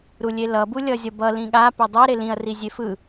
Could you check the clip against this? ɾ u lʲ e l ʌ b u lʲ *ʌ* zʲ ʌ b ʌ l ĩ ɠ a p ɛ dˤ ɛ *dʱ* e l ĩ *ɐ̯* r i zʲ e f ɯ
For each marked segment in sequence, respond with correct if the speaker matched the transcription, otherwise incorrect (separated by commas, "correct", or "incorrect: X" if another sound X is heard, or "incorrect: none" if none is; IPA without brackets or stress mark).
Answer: correct, incorrect: ɾ, correct